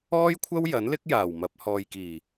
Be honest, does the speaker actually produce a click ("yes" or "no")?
no